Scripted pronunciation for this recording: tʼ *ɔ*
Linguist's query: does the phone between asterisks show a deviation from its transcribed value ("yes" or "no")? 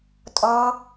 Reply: no